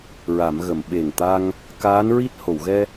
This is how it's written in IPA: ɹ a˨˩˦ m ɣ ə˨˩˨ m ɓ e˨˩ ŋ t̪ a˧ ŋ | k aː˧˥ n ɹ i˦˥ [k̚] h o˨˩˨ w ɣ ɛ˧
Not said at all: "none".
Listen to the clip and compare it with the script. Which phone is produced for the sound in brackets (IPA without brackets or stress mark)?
t̚